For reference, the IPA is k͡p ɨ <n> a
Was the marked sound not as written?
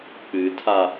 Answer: yes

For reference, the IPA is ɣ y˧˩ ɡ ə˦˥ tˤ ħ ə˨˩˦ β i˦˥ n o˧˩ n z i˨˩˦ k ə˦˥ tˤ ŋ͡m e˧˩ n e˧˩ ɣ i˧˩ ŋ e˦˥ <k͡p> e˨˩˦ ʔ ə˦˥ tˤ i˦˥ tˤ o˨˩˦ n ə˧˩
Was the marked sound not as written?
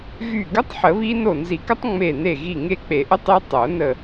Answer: no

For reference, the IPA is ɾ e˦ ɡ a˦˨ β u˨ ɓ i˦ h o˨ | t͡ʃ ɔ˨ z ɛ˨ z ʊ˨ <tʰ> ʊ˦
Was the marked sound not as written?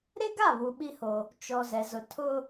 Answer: no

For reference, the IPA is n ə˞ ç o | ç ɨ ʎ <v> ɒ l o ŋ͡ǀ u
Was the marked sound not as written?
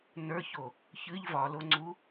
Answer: no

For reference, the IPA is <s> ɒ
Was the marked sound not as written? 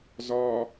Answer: yes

